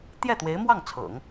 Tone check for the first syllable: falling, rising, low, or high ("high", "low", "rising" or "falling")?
falling